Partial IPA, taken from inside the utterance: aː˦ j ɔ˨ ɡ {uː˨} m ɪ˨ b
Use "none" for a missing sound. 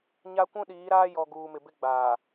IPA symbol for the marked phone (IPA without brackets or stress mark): uː˨